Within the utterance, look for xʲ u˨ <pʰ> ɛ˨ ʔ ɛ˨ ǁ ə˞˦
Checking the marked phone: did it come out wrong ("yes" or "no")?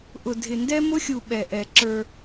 yes